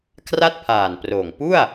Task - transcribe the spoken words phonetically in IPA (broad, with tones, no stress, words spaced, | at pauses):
kʰra˥˩t̚pʰaː˨˩nproː˨˩ŋ pu˥˩a̯